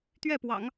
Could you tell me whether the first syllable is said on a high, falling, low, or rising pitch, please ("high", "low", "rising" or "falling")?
falling